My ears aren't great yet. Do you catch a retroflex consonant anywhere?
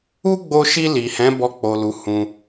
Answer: no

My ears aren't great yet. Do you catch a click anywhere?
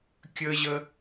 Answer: no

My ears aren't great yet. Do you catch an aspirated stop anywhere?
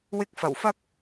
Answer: no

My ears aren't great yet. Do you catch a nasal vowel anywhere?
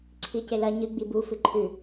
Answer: no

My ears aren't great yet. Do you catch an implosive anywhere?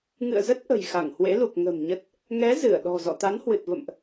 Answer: yes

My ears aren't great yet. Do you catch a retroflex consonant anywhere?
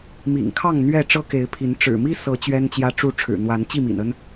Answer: yes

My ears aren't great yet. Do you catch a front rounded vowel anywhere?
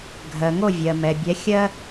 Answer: no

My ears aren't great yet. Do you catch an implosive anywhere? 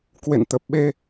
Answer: yes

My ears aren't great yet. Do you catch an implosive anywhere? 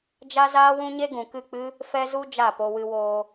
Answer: no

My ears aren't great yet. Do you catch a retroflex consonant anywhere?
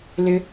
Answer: no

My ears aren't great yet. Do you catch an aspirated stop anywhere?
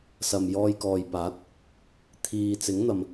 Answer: yes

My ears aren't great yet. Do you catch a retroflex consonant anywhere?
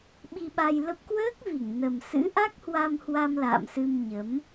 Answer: no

